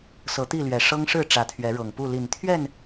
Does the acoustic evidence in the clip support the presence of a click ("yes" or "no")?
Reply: no